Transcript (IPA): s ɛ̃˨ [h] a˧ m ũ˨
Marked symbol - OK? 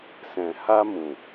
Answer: yes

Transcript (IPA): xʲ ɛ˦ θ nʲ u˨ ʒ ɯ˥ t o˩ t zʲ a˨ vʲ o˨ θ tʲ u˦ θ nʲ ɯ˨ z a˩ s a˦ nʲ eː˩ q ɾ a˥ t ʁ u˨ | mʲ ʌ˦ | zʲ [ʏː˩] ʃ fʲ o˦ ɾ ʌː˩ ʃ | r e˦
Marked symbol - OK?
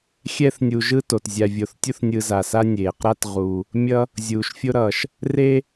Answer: no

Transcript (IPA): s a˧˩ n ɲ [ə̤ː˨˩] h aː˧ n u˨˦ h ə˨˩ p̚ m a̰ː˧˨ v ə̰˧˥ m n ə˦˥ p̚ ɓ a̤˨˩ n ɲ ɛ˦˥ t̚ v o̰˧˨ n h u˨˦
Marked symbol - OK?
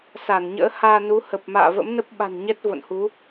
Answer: no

